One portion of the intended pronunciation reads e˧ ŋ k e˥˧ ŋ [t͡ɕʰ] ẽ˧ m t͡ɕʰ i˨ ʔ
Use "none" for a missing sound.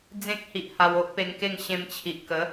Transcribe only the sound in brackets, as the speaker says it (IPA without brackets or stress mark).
ɕ